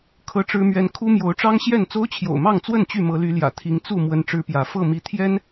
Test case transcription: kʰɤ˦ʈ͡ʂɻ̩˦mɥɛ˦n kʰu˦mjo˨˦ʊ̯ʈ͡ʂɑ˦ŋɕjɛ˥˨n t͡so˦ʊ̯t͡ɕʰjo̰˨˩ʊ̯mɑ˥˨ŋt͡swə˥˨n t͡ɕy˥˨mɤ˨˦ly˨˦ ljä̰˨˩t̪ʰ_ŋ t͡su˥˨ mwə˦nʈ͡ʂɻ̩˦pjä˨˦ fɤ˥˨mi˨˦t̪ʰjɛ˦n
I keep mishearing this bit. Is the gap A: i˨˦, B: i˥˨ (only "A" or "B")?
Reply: A